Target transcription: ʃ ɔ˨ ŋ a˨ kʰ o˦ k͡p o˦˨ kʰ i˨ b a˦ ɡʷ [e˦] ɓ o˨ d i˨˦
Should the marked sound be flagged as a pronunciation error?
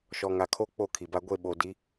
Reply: yes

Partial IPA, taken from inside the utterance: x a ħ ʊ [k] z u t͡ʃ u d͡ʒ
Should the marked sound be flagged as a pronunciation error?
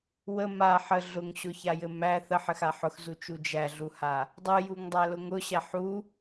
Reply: yes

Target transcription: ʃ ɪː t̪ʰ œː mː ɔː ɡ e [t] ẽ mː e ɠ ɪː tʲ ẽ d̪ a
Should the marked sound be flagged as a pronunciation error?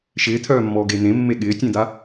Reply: yes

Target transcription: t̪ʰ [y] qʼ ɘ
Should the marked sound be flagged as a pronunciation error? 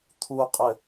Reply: yes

